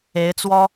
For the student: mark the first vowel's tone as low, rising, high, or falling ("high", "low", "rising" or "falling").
rising